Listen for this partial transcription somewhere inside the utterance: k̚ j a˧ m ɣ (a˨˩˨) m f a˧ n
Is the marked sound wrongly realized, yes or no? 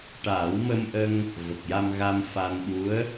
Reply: yes